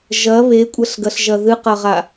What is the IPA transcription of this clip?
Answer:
ʒ ɐ β e kʷʼ ɐ ɬ ɡ ɐ ɬ ʒ ɐ ð ɨ q ɐ ʁ a

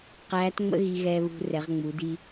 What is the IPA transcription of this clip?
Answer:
q æː˧˥ t ŋ͡m ə̰˥ ɣ i˧ ɣ ɛː˧ β ṳ˧ r ɛ˩˧ ʁ ŋ͡m u˩˧ d i˧

